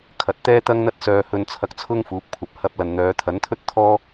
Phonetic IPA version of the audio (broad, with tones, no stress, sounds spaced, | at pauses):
kʰ ɐ˨ t̚ t̪ ɛː˥ t̪ ɐ˥ ŋ n̪ ɐ˥ t̚ s œː˧ h ɵ˧ n t͡sʰ ɐ˧ k̚ t͡sʰ ʊ˥ ŋ f uː˨˥ p̚ kʷʰ ɐ˨ p̚ h ɐ˧ p̚ l ɐ˨ n n̪ œː˨˧ t̪ʰ ɐ˨˥ n t̪ʰ ɵ˥ t̚ t̪ʰ ɔː˥